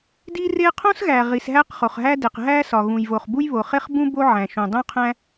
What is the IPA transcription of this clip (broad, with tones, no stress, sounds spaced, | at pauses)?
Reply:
d i˥ r e˥ qʰ õ˥ s ɣ æ˩ ʁ i˩ s ɦ æ˥ q χ o˩ χ ɦ æ˥ d e˩ q ɦ æ˥ s ɒ˩ ɣ ũ˩ j v o˩ χ b u˥ j β o˩ χ e˥ χ b ũ˥ b o˥ ʕ æ̃˩ ʃ ũ˩ dˤ ũ˥ qʰ æ̃˥